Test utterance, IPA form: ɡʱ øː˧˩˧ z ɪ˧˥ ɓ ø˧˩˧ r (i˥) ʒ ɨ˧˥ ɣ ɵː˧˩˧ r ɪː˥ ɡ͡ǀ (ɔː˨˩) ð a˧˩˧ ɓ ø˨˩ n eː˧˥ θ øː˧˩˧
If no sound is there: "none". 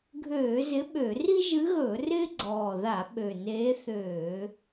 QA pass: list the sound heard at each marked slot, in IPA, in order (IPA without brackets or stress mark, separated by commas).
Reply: i˥, ɔː˨˩